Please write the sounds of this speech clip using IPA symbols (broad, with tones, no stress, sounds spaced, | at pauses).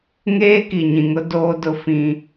ŋ eː˦ k i˨ ɲ ĩ˨ ŋ ʊ˦ d oː˦ d ʊ˦ f ĩ˦